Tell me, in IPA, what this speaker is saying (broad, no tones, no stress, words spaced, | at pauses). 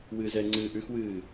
wɨːzɛŋ͡ǀɨː ʔʉxwɨː